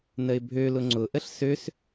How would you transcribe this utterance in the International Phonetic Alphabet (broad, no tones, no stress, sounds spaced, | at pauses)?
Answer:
n ə ɪ̯ bʱ ø l ʊ ŋ͡ǀ ʊ ʔ ə ɬ s ø s